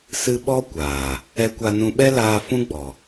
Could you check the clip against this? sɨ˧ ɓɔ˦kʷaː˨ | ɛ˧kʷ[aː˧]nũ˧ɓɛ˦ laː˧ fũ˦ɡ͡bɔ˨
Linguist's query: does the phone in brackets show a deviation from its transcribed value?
yes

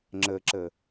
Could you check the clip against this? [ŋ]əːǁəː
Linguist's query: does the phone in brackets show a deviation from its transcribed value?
yes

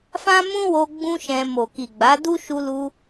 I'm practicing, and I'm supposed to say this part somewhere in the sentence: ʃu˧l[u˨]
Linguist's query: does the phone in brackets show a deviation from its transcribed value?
yes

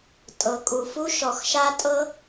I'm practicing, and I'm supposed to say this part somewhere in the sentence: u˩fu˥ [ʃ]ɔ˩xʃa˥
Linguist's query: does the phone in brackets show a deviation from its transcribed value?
no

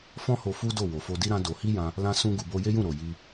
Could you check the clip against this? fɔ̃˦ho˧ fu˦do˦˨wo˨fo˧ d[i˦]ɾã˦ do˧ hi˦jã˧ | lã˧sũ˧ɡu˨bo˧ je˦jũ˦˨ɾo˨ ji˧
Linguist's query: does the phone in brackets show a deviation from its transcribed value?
no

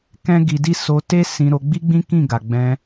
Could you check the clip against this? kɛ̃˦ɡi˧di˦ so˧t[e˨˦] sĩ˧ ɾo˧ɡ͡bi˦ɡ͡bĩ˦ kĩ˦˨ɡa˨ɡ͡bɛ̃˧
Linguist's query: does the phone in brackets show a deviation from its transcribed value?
yes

